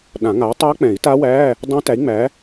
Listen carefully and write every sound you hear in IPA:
ɗ ã˨˩˦ ŋ a˨˥ tˤ ɤ˦˥ k͡p ɛ̃˨˩˦ i̯ t a˦˥ w æ˧˥˧ | dˤ ɛ̃˦˥ t æ˨˥ i̯ ŋ͡m æ˨˥

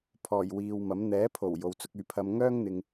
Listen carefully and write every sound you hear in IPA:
pʰ ɔː˨˩ j w iː˨ w m ɐ˨˥ m n̪ ɛː˨˥ pʰ o˨˩ w j o˨˧ w t͡s ʊ˧ k̚ yː˨ pʰ ɐ˧ m ŋ œː˥ ŋ n̪ ɪ˨ ŋ

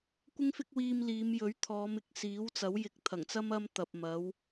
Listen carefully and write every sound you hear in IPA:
kʷ ɪ˥ ŋ f ɪ˥ k̚ w iː˧ m l iː˨˧ m j ɵ˨˥ ɥ t̪ʰ ɔː˨˧ m ɪ˨ k̚ s iː˨˥ w t͡s ɐ˨˥ w j ɪ˨˥ k̚ t̪ʰ ɐ˨˩ ŋ t͡s ɐ˥ m ɐ˥ m t̪ ɐ˨ p̚ m ɐ˨˥ w

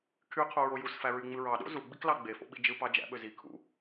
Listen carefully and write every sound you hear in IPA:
kʰ y qʰ u ɹ o j u s f æ ɹ y ŋ͡m ɯ ɹ ɑ ɗ o̰ z u ɡ͡b i k l ɑ ɡ͡b e f o̰ ɓ i d͡ʒ ɯ p ɑ d͡ʒ æ̰ ɓ ø z i kʰ ṵ

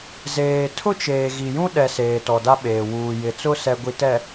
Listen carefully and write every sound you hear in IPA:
z eː˨ tʰ ʊ˦ t͡ʃ eː˨ ɣ i˨ j ũ˦ ɗ ɛ˨ s eː˨ t ɔ˨ d a˦ ɓ eː˨ w uː˨ j ɪ˨ t͡s ʊ˦ s ɛ˨ ɡʷ i˨ t ɛ˨

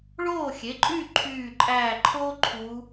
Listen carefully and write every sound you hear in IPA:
ɭ oː˥˩ xʲ e˩˧˩ ǃʼ yː˥˩ ǃʰ yː˧˩ ǃʼ æ˧˩ ǃʰ o˦ ǃʰ u˨˥

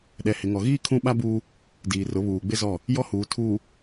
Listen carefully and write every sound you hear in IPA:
ɗ ɛ˨ h ɪ˨ ŋ ɔ˨ ɣ iː˦ kʰ ũ˦ ɓ a˦ b uː˦ | d iː˨ r ʊ˨˦ β uː˨ ɡ͡b ɪ˦ z ɔ˦˨ | j ɔ˦ h uː˨ tʰ uː˨

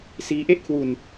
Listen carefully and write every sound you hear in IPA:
s iː˦˥ ʔ e˥˩ ʔ kʰ w u˧ n

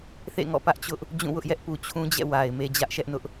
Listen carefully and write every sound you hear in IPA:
θ ḛ˦˨ ŋ ɔ̰˦˨ p ä˦ ʔ t͡ɕ ʊ˦ ʔ | d͡ʑ ũ˦˨ w ʊ˦ ʔ j ɛ˦ ʔ p u˨ t͡ɕʰ ũ˦ d͡ʑ ɛ̰˦˨ w a˨ ɪ̯ m e˦ d͡ʑ ä˦ ʔ ʃ ɛ˦ ʔ n ʊ˦ ʔ

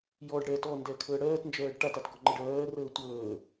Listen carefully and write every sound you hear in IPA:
j ɔ ɖ ɽ ɛː t ɔ n d ɛ kʰ əː ɽ ɜː t n d͡ʒ ɜː ɖ ʈ a t a t ɡ ɔ ŋ͡ǃ ə ɖ ɜː r əː tʷ əː

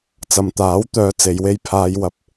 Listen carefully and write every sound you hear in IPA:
t͡s ɐ˨ m t̪ aː˨˥ w t̪ œː˨˧ t͡s e˨˧ j w e˥ j pʰ aː˨˧ j w ɐ˨ p̚

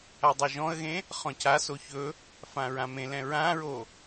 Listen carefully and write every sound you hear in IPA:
a dˤ e ʒ ɔ̃ ə̯ ɣ ẽ | χ ɔ̃ c a s o ç ɵ | f ã ɹ ã m ẽ l ɛ̃ ɹ ã ɹ o

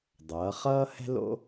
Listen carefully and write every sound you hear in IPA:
dˤ ʌː˩˧ χ ʌː˥ h ɛ̤˥ l o̰˥

